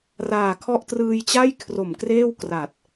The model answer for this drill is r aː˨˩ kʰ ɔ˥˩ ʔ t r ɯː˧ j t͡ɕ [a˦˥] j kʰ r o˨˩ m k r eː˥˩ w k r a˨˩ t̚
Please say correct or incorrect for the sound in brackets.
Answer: incorrect: a˥˩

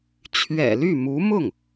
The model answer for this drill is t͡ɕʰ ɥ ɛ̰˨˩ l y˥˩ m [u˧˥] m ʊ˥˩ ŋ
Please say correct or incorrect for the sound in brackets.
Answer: correct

